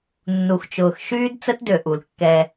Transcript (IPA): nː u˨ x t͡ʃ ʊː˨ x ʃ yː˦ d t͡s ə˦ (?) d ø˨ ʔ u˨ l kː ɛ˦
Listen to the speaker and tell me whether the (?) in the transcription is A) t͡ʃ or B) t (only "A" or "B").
B